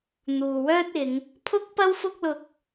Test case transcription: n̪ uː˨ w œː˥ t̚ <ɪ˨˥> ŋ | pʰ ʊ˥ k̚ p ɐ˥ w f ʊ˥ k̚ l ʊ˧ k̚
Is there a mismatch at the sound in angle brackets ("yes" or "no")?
yes